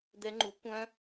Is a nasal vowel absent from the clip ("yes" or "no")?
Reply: no